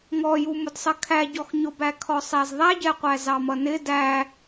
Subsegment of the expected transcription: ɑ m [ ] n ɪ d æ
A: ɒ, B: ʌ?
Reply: B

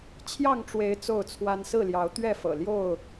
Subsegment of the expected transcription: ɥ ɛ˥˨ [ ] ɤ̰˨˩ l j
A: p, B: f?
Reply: B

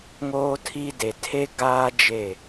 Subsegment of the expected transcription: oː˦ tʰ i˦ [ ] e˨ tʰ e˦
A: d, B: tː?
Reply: A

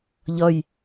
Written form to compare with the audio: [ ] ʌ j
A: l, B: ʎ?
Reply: B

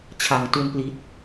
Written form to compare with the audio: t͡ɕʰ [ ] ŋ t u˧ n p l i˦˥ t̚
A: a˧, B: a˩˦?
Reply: B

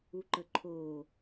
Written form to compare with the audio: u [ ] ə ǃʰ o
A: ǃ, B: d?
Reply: A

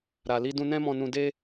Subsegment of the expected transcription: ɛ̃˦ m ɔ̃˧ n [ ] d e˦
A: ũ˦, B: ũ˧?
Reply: B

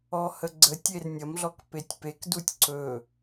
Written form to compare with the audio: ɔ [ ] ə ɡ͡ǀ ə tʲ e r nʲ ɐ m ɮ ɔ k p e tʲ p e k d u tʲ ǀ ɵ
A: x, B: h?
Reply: B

